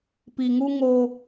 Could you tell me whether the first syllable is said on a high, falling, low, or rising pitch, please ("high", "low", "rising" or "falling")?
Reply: low